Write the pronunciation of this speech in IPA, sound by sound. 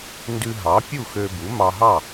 n d ʉ˧ ɦ ɑ˩˥ pʲ u˥˨ x ø˧ b u˩˥ m ɑ˧ ɦ ɑ˥˨

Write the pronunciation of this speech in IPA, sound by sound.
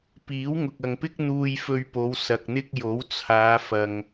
p iː˨˥ w ŋ ʊ˨ k̚ ɐ˨ ŋ p ɪ˥ k̚ n̪ uː˧ j f ɵ˧ ɥ p o˨˧ w s ɐ˨ k̚ n̪ ɪ˥ k̚ j o˨˥ w t͡sʰ aː˨˧ f ɐ˨ ŋ

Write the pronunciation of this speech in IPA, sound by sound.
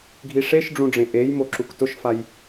ɡʱ i ʂ e ʃ ɖ͡ʐ ũ ɖ͡ʐ ẽ ʔ e j m o ǁ u k t ʊ ʃ f a j

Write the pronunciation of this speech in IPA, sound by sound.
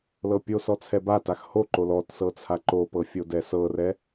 l ɤ pʲ o s ɔ t͡sʰ ɛ b a t a x h o ǃ o l ɔ t s ɤ t͡sʰ a ǃ o p ɤ fʲ o d ɛ s ɤ r ɛ

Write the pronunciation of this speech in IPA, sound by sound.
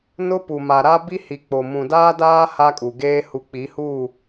n ʊ˦ p u˨ m a˨ ɾ a˦ b i˦ h i˨ k͡p o˨ m ũ˨ d aː˦ d aː˦ h a˦ kʼ u˨ ɡ eː˦ h u˨ k͡p i˨˦ h uː˦˨

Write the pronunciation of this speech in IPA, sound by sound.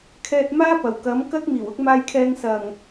kʰ ɛː˧ t̚ m aː˥ p ɐ˨˩ w k ɐ˨˥ m k ɐ˥ k̚ m iː˨˩ w ʊ˥ k̚ m aː˧ j kʰ ɛː˧ ŋ s ɐ˨˩ ŋ

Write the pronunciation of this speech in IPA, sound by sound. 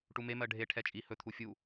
ʈ u m e m ɜ ɖʱ e ʈʰ ɛ t͡ʃʼ i h ɵ t̪ʰ u fʲ u

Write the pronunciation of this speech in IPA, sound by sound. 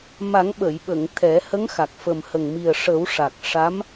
m a˨˩˦ ŋ ɓ ə˨˩˨ j ɓ ə˨˩˨ ŋ t̪ʰ ɛ˨˩˦ h ə˧˥ ŋ x a˨˩ k̚ f ə˨˩ m h ə˨˩ ŋ m i˨˩ ə̯ ʂ ə˨˩˦ w ʂ a˨˩ k̚ ʂ a˧˥ m

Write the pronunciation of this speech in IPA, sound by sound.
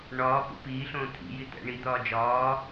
ɳ ɒː p ṵ p iː ɬ õː t̪ʰ ḭ j i t̪ æ̰ ɳ i d̪ ɒː d͡ʒ ɒː

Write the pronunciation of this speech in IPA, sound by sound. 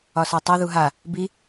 ɒ s ɒ tˤ o ð u ɦ a | b i

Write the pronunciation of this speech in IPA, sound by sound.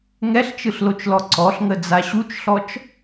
ŋ ɛ ɬ t͡ʃ ɯ ɬ l o t͡ʃ l ɔ ǀ ɔ ɬ ŋ ə d͡z a ɕ u t͡ʃ ɬ ɔ t͡ʃ

